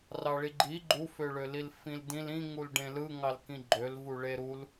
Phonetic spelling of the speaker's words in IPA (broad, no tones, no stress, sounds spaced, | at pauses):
r ɑ ɭ i ɡ͡ǃ i ɡ͡ǃ u f ø ɭ ø l i l f ĩ l d ĩ l ĩ ŋ u l ɖ ẽ l ɯ ŋ ɑ l k ĩ ɡ͡ǃ ø l v u ɭ e ɾ u l